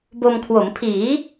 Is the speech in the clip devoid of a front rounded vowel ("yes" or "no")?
yes